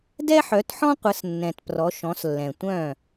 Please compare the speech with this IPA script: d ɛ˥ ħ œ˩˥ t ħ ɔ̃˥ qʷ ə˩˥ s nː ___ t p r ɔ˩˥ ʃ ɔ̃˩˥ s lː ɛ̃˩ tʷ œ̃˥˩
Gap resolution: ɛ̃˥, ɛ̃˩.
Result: ɛ̃˩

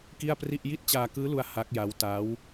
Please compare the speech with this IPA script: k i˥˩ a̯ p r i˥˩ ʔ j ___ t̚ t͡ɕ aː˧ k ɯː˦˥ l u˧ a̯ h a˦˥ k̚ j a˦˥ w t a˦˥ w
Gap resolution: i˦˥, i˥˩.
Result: i˥˩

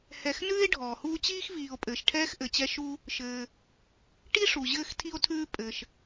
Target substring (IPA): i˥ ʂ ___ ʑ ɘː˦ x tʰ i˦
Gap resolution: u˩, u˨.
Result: u˩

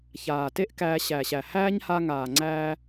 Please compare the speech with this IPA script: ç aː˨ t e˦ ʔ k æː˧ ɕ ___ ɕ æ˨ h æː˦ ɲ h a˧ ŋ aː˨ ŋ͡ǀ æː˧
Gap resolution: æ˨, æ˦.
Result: æ˨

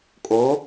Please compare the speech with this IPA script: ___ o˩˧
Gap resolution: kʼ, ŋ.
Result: kʼ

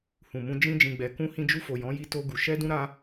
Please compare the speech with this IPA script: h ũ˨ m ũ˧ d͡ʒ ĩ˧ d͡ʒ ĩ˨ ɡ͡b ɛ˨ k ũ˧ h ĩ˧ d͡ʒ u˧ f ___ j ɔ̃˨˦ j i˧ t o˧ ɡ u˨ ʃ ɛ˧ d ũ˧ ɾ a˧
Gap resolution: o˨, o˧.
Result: o˨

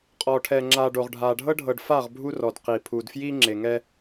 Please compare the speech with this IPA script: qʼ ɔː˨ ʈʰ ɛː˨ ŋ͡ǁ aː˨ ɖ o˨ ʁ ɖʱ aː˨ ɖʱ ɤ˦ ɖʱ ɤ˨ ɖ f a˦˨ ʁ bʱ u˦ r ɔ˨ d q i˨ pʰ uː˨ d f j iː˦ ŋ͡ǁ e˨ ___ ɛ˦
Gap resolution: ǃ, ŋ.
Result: ŋ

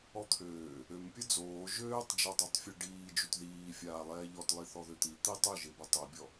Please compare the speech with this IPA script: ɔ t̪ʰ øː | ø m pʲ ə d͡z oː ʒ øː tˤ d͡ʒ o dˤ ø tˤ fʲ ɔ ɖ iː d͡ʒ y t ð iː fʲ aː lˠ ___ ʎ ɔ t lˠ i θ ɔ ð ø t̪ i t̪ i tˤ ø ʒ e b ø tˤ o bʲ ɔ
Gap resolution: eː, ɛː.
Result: ɛː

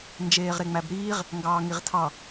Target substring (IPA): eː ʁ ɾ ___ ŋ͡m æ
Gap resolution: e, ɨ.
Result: e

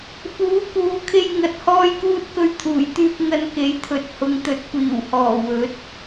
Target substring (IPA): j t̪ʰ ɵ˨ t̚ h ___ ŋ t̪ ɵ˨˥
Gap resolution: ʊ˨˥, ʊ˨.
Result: ʊ˨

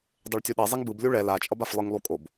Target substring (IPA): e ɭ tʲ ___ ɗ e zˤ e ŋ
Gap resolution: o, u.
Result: u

